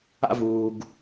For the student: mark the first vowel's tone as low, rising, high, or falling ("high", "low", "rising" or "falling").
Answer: high